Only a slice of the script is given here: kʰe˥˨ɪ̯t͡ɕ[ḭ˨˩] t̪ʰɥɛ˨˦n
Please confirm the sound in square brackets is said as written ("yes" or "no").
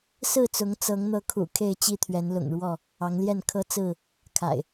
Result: no